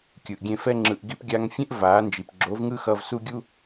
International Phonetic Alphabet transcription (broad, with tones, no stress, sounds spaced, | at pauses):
kʲ ɯ˨ ʔ ɡʲ ẽ˧ f ɛ˦ ŋ͡ǁ ɯ˨ ʔ ɡ i˧ p ɡʲ a˧ ŋ fʲ ẽ˦ ʔ v aː˨˦ n d͡ʒ i˨ p ɡ͡ǁ o˨˦ v ŋ ɯ˦ x ʌ˧ v s u˦ ɡʲ u˦